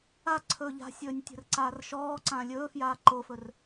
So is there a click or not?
yes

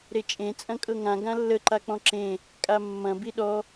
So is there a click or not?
yes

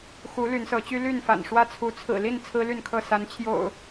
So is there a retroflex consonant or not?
yes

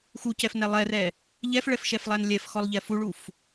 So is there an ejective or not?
no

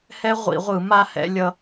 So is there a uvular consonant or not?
yes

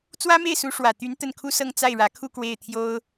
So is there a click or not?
no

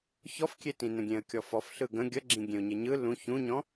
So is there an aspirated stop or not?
no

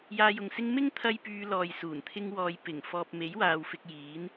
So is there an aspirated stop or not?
yes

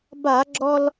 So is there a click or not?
yes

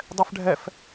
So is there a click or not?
no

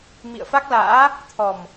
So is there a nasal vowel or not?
no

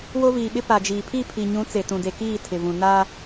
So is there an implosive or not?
yes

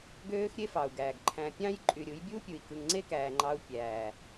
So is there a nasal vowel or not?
yes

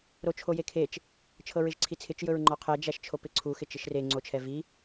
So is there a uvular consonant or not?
yes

